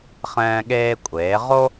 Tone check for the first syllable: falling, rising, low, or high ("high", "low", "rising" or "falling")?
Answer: high